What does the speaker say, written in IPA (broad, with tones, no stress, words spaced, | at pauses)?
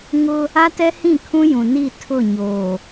ŋʊ˦ | a˦tɛ˦hĩ˦˨ kʰũ˦jũ˨ ni˦˨ tʰʊ˦˨ɲoː˨